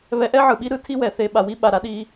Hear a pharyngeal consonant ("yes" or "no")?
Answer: yes